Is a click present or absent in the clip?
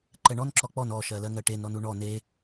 present